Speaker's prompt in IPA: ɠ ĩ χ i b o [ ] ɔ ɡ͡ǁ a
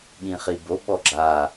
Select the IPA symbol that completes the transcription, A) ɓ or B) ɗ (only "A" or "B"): A